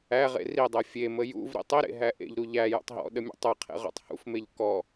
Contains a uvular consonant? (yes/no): yes